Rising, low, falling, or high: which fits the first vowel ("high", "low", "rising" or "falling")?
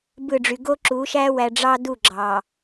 falling